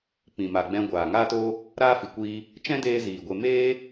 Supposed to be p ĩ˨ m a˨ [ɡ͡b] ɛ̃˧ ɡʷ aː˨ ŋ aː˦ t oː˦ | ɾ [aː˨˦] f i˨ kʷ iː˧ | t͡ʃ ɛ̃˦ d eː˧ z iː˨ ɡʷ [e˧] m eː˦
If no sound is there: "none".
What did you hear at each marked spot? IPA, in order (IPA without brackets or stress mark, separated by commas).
ɡ͡b, aː˦, e˧